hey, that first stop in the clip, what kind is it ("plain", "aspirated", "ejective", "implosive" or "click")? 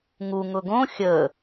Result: plain